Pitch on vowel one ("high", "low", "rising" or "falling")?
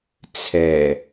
low